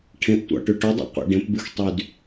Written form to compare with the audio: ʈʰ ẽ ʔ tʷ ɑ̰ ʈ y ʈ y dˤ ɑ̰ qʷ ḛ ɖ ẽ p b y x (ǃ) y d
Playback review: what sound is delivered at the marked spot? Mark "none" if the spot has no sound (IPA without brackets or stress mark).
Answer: tˤ